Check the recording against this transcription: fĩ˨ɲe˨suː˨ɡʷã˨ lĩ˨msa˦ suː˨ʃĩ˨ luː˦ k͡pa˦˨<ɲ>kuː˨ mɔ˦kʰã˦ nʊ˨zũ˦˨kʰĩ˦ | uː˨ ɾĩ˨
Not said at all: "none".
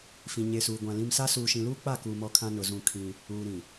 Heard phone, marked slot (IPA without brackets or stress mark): none